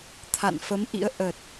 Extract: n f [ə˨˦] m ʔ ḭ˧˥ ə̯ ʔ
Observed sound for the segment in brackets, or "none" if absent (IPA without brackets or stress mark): ə˨˦